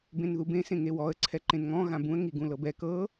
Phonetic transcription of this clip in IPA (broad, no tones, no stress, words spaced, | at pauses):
bẽnðubẽ sẽŋewɔə̯ ǀʰɛǃẽnŋɔ̃ ɣãbũə̯ ŋiɡũlɤbɛ kɤ